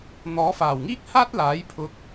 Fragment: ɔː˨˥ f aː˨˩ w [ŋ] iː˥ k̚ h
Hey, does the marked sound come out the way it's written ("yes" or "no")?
yes